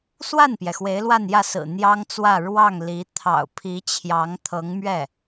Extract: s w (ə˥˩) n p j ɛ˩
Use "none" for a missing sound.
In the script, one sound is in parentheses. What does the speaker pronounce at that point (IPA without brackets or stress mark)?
a˥˩